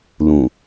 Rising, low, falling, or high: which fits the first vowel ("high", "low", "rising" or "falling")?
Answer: low